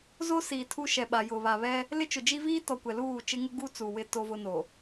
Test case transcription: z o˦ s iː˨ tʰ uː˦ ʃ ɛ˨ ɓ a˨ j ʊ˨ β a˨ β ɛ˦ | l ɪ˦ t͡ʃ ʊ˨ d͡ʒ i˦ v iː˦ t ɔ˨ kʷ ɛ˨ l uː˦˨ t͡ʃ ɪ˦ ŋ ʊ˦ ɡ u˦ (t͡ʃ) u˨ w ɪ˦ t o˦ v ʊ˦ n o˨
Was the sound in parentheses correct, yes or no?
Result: no